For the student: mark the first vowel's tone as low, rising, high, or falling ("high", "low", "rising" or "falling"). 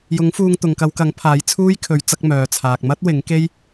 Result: rising